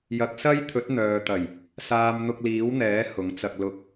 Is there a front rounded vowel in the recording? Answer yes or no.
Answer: yes